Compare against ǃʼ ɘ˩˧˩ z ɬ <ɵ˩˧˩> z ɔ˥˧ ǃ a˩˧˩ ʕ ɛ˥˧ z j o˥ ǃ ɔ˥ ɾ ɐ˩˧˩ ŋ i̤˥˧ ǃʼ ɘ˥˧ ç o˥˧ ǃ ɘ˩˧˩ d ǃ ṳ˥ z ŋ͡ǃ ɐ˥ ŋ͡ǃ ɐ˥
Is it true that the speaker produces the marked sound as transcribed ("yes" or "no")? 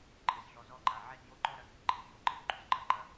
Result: no